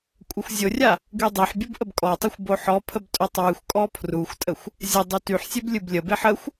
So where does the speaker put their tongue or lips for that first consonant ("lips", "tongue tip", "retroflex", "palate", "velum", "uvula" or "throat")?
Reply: velum